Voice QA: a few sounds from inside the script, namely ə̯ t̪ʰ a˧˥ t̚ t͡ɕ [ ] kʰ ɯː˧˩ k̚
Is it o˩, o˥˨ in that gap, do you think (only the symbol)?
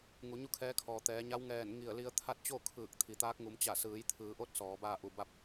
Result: o˥˨